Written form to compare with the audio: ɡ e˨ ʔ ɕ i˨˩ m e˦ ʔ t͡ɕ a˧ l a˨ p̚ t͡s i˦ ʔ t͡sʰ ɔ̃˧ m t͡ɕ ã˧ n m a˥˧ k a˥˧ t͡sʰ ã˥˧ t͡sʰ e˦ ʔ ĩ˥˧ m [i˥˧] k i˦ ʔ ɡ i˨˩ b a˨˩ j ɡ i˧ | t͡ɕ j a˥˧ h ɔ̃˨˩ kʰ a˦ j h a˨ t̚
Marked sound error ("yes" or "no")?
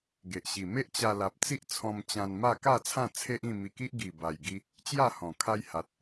yes